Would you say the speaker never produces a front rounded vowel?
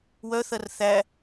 no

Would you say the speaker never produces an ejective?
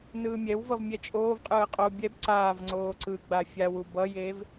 no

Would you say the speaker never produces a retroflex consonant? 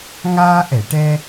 no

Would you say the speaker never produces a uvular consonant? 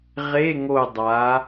no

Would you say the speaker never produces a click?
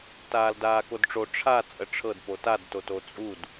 yes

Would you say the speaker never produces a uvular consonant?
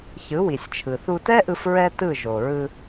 yes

